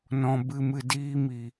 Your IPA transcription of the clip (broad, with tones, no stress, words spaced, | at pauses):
nɔ̃˧ bɨ˧mɨ˧ diː˦mi˨